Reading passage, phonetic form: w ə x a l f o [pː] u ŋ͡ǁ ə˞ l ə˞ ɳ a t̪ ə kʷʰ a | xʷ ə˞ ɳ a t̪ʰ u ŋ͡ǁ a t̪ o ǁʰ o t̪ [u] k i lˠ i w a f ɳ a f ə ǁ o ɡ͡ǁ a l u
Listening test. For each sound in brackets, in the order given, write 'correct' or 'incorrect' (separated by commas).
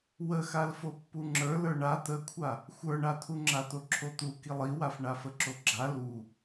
correct, correct